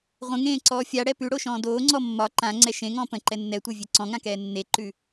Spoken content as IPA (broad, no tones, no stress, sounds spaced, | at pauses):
ʁʷ ə̃ ŋ ẽː ǀ ɔː fʲ a ɽ ɛ p ʉ ɽ o ʃ ɔ̃ː d oː ŋ͡ǀ ɔ mː ɒ ǃ ã ŋ͡ǀ ɛ ʃ ẽ ŋ ɔ̃ː p ə̃ ǃ ɛ nː ɛ tʷ ɛ vʲ e ǀ ɔ̃ ŋ ã k ɛː nː e ǃ ʉ